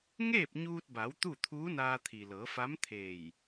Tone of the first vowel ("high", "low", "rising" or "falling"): falling